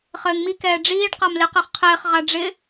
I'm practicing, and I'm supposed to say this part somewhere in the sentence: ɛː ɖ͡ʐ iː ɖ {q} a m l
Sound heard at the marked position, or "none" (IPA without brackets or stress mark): q